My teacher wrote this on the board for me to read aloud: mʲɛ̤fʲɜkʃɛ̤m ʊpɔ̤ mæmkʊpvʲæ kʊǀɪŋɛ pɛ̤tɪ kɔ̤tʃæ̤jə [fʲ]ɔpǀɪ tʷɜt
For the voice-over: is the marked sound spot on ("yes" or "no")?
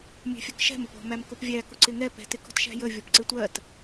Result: no